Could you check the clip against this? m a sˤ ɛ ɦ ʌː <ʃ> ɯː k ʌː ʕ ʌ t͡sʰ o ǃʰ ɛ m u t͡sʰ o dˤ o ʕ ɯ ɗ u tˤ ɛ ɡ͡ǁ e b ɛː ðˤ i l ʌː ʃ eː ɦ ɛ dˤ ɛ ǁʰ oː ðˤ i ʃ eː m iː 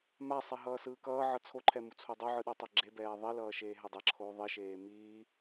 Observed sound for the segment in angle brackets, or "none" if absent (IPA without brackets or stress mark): s